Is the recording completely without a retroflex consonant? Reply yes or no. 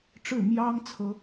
no